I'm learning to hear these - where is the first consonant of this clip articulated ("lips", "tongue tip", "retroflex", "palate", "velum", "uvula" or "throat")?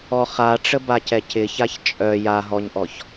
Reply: uvula